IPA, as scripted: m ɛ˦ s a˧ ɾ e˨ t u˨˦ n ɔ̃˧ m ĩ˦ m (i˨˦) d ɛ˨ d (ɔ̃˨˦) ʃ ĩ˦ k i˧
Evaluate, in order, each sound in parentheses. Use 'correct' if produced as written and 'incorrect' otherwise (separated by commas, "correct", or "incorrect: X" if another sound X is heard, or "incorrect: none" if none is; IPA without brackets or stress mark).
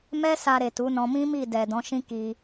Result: incorrect: i˦˨, correct